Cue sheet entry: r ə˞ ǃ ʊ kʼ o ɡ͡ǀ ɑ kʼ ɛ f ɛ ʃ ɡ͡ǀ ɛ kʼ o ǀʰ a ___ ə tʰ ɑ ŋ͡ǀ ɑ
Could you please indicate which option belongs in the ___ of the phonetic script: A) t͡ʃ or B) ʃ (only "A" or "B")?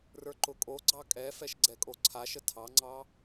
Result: B